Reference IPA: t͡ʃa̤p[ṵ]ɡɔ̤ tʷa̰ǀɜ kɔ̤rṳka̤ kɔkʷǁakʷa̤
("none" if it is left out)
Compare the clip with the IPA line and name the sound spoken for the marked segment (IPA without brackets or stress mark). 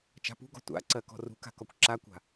ṳ